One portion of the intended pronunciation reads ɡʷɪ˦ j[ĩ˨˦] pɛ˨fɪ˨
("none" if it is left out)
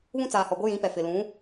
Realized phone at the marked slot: ĩ˨˦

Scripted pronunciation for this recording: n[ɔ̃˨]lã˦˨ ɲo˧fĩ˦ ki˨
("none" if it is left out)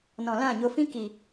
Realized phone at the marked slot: ɔ̃˨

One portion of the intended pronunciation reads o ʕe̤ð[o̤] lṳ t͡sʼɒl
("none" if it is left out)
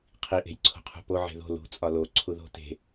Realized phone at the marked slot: o̤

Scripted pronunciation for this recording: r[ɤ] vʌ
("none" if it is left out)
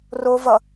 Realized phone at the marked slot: o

